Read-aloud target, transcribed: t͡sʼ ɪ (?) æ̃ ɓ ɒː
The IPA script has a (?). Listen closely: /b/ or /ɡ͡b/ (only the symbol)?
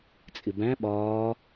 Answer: b